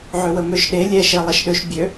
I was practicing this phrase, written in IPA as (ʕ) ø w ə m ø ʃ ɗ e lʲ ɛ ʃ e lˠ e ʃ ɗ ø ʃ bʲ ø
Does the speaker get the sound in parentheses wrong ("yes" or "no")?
no